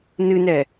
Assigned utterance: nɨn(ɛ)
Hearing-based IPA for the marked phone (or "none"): ɛ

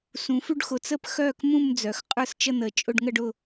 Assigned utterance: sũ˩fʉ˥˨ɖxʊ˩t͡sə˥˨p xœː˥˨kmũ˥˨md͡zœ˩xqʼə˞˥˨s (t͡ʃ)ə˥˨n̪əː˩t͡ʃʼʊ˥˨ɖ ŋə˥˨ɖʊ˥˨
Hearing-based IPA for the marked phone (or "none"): t͡ʃ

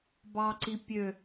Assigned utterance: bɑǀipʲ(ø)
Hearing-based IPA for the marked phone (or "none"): ø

